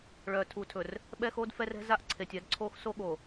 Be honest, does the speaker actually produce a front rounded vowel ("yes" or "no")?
yes